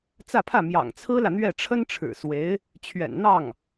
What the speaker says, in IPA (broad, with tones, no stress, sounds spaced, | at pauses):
t͡s ä˥˧ pʰ ä˥˩ m j ɑ̰˨˩ ŋ t͡sʰ ɹ̩˥ l ä˨ n̪ ɥ ɛ˥˩ ʈ͡ʂʰ ə˥ n ʈ͡ʂʰ ɻ̩˨˩ s w e˧˥ ɪ̯ | t͡ɕʰ ɥ ɛ̰˨˩ n n̪ ɑ˥˩ ŋ